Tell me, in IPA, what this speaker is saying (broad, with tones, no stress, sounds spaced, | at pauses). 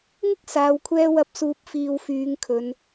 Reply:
ŋ ɪ˥ k̚ s aː˨˧ w kʷʰ ɛː˧ w ɐ˨˥ p̚ s uː˨˥ p̚ f iː˨ w f yː˨˧ ŋ kʰ ɵ˨˧ n